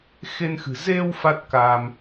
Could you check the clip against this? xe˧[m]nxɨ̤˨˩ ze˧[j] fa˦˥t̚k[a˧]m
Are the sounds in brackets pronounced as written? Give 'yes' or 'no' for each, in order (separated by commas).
no, no, yes